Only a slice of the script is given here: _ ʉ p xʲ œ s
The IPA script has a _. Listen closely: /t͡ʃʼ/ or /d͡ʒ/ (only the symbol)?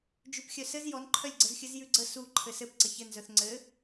d͡ʒ